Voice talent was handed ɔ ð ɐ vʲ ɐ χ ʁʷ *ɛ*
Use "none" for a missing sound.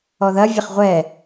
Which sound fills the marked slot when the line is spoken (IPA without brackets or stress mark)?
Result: ɛ